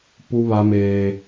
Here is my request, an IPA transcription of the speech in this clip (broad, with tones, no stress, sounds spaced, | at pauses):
p u˦ β a˦ m eː˦